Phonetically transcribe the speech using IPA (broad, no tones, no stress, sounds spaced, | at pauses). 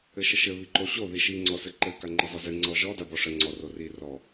ɘ ʃ ə ʃ ɘ β i ǃ o ɕ o ð i ʃ i ŋ͡ǀ ɔ s ɘ ǃ ɘ k a ŋ͡ǃ ɘ zˤ ɘ z ɘ ŋ͡ǀ ɔ ʒ ɔ d a b ɔ ʂ ə ŋ͡ǀ ɔ r o r i r ɔ